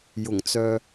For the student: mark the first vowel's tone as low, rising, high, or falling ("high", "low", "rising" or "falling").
low